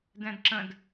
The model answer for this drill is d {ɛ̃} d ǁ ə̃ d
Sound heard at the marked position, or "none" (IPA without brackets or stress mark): ɛ̃